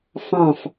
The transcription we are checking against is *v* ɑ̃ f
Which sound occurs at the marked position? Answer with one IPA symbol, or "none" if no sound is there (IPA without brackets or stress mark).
f